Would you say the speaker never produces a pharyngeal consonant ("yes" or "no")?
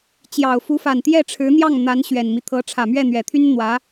yes